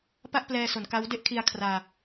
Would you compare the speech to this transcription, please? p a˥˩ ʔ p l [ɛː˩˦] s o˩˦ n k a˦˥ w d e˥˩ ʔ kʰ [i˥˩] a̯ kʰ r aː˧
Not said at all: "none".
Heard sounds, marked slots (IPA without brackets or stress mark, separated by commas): ɛː˧, i˧